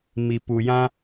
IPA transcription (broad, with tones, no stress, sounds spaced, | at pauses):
m i˨ p u˨ j ã˦